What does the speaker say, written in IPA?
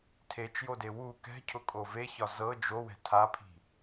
tʰ e t͡ʃ j o d e w u k ɛ̤ cʰ ʊ kʼ o v e ç ɒ z ɤ d͡ʒ o w ɛ̤ tʰ a pʰ i̤

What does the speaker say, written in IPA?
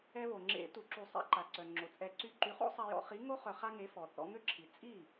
ɛ˧ β o˩ ŋ͡ǁ ḛ˨˩˦ t u˩ ǁ u˨˩˦ sˤ ḭ˨˥ ǃ a˩ ǀ œ˩ ŋ͡ǁ o˩ t͡sʼ ɛ˨˩˦ ǀ y˧ ǃ y˨˥ χ o̰˥ sˤ ɛ˧ j ɔ̰˧ χ i˨˥ ŋ o˥ χ œ˧ χ a˥ ŋ e˨˥ f ɔ˩ θ ɔ̰˧ ŋ ø˥˩ ǁʰ i˩ t͡sʼ i˥˩

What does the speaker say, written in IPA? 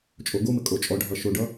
t͡ʃʼ o ɡ o m ɘ kʼ o t͡ʃʼ ɔ ɖʱ ʌ ʃ o ɖ ʌ

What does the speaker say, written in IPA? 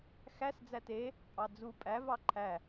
x æ s d͡z æ t e | pʼ ɑ d͡z u pʼ æ v ɑ ǃʰ æ

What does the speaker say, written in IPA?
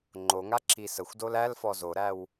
ŋ͡ǃ o ŋ a ǁ i s ə xʷ d o l æ l f ɔ z o ɾ æ w

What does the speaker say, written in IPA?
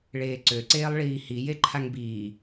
ɭ eː ǀ ø ǀ eː lˠ ɭ iː h i j e ǃʰ a ŋ b iː

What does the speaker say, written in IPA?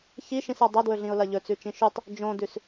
ç i ʃ ĩ s a dˤ ɐ d w ɵ ɮ ĩ ʊ̯ l ɐ ʎ ɵ t͡s ʉ t͡ʃ ĩ ʃ ʉ tˤ | d͡ʒ õ d ʉ s

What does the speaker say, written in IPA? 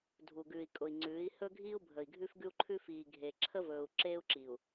dʱ u˨ ɡ ʉː˨ i̯ kʼ ʊ˨ i̯ ŋ͡ǀ ʉː˨˦ i̯ h ɵ˦ ɡʱ iː˦ u̯ bʱ ə˨ i̯ ɡʱ ʉ˦ f ɡ ʉ˦ u̯ ǃʰ ʉ˦ f iː˨ ɡʱ e˨ ǁʰ ə˦ v ɵː˨ u̯ ǁ eː˦ u̯ ǁ i˨ u̯

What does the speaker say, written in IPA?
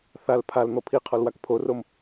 θ a l pʰ a l n̪ ɔ pʰ i qʰ ɔ l w a k pʰ o r o m

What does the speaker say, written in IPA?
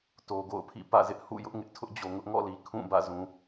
t o˨ ɡ o̰˦˨ ʊ̯ pʰ ḭ˦˨ p ä̰˦˨ z ɪ˦ ʔ h ṵ˦˨ j ʊ˦ ʔ ŋ ɪ˦ ʔ tʰ ʊ˦ ʔ d͡ʑ o˨ ŋ ʊ˦ ʔ ŋ ɔ̰˦˨ l i˨ kʰ ũ˦˨ b ä̰˦˨ z ũ˨

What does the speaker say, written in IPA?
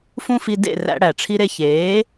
f ũ˥ f i˧ d ḛ˥˩ r æ̰˧ ɽ æ˩ ʈ͡ʂʰ i˧ ɾ e˧ ç eː˩˥

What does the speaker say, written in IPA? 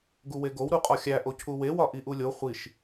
ɡ u w e ɡ o w ɾ u qʼ ɒ xʲ æ ʔ o cʰ u w e w ɒ ʔ i ʔ u lʲ o χʷ i ʃ

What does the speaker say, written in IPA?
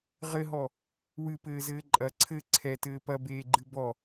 ʁ ɘ ɦ ɔ | w ɨ p ɘː z ɘː ǃʼ ɐ ǀʰ ɘ ǀʰ ɛ t ɘː p ɐ b eː ɡ͡ǃ ɨ b ɔ

